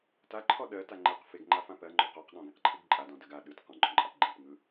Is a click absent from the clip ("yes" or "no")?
no